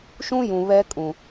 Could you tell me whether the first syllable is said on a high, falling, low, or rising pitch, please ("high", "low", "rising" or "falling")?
high